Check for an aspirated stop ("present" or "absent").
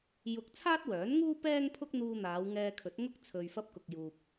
present